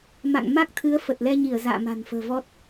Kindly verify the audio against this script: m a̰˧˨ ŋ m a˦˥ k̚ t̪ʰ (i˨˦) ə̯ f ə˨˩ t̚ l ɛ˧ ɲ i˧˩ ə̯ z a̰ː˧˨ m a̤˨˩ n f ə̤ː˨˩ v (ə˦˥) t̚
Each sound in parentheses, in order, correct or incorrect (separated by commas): incorrect, incorrect